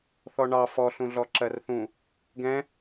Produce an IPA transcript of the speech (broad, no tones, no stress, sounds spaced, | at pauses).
θ ɔ ɳ ɑ f ɔ ɬ ũ ɮ ɔ ǁ ɜ r θ ũ | ɡ ɛ̃